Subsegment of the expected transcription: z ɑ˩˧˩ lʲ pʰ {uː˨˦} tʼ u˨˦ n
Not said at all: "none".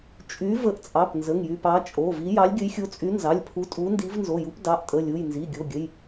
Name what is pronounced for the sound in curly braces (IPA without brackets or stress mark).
u˨˦